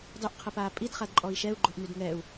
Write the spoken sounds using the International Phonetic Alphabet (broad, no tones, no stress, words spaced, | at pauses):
dˤyʔqʰəpaː pʼidχadǃʼɔi̯ ʃɛu̯ɡ͡ǃoʔnyd ŋɛu̯